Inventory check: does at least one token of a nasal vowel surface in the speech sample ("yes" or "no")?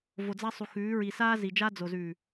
no